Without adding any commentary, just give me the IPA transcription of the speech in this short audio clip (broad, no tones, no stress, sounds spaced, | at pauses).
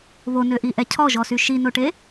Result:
β o n ø ʔ i ʔ ɛ cʰ ɔ ʒ ɔ s y ʃ i n o ʈ e